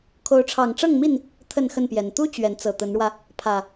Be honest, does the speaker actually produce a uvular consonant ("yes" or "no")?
no